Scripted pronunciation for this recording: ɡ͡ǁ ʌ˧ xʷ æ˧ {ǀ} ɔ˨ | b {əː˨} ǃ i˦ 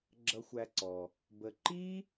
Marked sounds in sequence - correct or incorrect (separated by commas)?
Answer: correct, incorrect